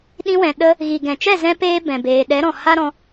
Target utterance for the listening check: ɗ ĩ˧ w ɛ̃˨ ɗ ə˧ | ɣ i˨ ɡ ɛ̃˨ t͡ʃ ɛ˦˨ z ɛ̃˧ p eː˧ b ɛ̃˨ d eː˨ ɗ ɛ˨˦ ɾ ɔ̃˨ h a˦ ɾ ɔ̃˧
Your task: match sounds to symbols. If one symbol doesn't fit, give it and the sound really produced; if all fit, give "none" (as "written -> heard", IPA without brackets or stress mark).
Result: d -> b